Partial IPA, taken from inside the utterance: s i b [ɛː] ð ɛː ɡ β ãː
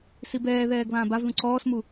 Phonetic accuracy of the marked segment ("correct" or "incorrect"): correct